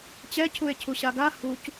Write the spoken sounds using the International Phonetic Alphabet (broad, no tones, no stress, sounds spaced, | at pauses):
t͡ɕ ɛ cʰ u e̯ cʰ u ɕ a ɡ a h u c